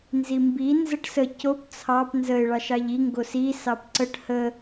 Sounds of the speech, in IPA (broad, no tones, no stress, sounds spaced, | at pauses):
n z i m b i n z ə ʈ s ə c o p t͡sʰ ɑ p n z ə ɪ̯ ɭ ɑ ʃ ɑ ʎ i ŋ ɡ o s i s ɑ p ǀ ə ʈ h ə